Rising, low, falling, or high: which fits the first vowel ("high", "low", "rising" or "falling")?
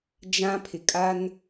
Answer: high